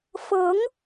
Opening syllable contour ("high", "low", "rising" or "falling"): rising